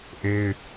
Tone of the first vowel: high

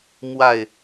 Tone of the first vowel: falling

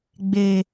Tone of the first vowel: high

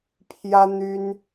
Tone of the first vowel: high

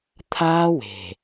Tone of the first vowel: high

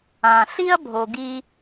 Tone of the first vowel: low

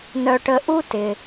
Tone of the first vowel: high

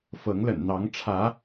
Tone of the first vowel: rising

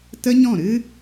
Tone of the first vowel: high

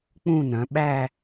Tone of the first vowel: falling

